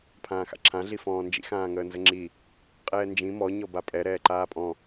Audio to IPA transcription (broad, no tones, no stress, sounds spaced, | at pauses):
pʰ ãː x a̰ ǁʰ ã ɮ i f ɔ̃ː n d͡ʒ ḭ x ãː ŋ əː n z ə ŋ͡ǁ i | qʼ ɛː n d͡ʒ ĩ m ɔ ɲ ɔ b a pʼ ɛ ɾ ɛː ǃ aː pʼ ɔ̃